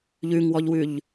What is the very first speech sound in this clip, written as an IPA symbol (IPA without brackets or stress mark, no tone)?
ʎ